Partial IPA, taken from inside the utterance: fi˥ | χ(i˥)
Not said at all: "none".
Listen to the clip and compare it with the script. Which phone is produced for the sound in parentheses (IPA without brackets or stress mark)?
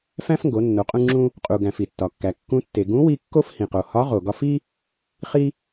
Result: i˥